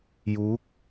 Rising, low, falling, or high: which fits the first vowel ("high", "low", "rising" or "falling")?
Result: rising